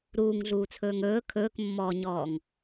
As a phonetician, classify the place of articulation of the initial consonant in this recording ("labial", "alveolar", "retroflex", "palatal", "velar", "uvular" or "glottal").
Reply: alveolar